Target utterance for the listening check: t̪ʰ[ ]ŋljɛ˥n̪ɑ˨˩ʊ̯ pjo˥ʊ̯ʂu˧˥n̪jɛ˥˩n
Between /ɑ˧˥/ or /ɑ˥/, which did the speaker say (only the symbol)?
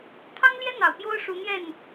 ɑ˥